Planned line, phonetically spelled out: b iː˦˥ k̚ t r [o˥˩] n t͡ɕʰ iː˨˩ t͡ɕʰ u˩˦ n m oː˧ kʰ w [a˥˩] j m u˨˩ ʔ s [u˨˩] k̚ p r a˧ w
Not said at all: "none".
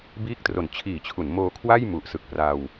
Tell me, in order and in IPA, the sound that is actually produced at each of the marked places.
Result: o˨˩, a˥˩, ɯ˨˩

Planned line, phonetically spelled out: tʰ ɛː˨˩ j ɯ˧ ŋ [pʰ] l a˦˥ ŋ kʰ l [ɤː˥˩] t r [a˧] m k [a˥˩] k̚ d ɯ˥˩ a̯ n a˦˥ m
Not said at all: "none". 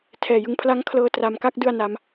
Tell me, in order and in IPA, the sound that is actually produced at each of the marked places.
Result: pʰ, ɤː˧, a˧, a˥˩

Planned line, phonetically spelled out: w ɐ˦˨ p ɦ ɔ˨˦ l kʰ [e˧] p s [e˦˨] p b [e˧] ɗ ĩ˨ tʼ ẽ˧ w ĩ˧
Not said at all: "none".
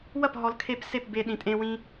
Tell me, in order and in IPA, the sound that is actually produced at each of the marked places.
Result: e˧, e˦˨, e˧

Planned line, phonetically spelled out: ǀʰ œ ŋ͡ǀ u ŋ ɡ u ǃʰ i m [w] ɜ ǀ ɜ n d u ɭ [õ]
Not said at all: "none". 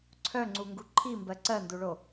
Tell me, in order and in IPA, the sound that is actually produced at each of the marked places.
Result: b, o

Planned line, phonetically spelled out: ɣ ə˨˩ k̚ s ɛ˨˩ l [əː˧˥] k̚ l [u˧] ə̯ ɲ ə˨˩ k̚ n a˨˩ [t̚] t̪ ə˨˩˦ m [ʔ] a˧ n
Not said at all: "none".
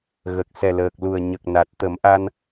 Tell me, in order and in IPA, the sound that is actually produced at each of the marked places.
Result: əː˨˩, u˨˩, t̚, ʔ

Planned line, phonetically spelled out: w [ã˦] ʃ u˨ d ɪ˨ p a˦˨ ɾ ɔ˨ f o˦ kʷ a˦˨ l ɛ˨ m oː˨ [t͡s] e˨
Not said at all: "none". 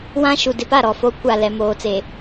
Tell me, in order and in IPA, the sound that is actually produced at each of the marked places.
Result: ã˦, t͡s

